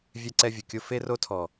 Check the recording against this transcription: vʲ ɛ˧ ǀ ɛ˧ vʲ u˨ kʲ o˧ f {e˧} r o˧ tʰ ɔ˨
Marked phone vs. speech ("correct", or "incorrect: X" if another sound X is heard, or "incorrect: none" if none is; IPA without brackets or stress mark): correct